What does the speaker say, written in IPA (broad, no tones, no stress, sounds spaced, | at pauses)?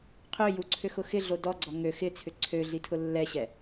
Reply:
qʰ ʏ j u ǀʰ ʏ x ʊ x ɪ ɮ o d ɔ ɡ͡ǀ ɔ ŋ ø x ɪ t͡sʰ ʏ ǀʰ ø ɮ i tʰ ʊ lː ɛ ɕ ɛ